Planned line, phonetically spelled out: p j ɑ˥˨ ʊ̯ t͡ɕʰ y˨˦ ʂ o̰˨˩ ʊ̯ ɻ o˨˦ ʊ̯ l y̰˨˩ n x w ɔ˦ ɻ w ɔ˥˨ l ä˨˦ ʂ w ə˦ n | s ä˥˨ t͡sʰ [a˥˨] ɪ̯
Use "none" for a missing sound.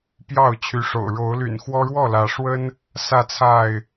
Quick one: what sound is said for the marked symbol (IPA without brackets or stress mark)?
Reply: a˥˨